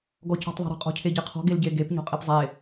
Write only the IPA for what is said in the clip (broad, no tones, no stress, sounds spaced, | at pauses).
ɡ ɔ c ɔ̤ tˤ ðˤ e̤ ɾ ə̤ qʼ ɔ̤ cʰ e ɟ e qʰ ɔ̤ ɡ e l ɟ e ɡ e p ɲ ɔ̤ qʼ i p zˤ e